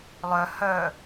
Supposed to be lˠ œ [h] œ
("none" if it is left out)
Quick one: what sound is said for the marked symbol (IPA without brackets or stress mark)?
h